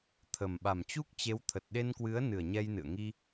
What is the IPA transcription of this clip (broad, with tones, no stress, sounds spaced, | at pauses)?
t̪ʰ ə˨˩ m ɓ a˨˩ m t͡ɕ u˦˥ k̚ t͡ɕ e˨˦ w t̪ʰ ə˨˩ t̚ ɗ e˧ n k w ɨ˨˦ ə̯ n ɨ˨˩ ə̯ ɲ ɛ˧ j n ɨ̰˧˨ ə̯ ŋ i˧